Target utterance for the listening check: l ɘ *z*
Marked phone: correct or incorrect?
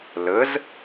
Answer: correct